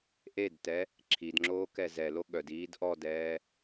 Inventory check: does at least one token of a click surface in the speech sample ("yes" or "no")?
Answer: yes